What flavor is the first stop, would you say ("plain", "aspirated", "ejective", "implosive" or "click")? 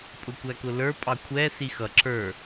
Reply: ejective